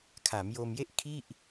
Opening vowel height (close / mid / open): open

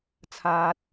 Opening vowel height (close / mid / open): open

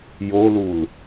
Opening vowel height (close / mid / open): mid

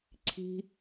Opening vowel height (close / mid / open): close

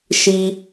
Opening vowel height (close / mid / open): close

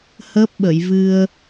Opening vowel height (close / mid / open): mid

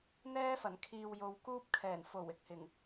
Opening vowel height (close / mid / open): mid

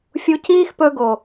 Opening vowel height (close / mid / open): close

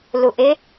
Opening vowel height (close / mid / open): close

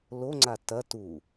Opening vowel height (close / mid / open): mid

